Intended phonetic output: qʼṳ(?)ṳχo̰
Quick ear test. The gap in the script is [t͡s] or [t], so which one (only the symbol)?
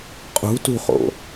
t